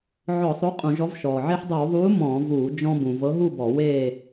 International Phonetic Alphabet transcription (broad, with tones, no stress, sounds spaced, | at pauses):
ʕ ɔ˧˩˧ sˤ o˨˥ qʼ ũ˧˩˧ ʒ ɔ˨˥ v ʃ ɔː˩ ʕ e˧ ħ dˤ ɤ˧˩˧ w ðˤ uː˨˥ m ɔ̃ː˧˩˧ v uː˧˩˧ d͡ʒ ɔ̃˧ b ũ˩ v ɤ˨˥ ɦ u˥˨ b ɔ˧˩˧ w e˥˨